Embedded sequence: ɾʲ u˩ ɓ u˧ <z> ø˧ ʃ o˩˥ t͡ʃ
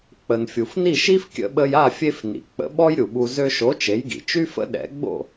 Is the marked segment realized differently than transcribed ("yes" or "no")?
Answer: no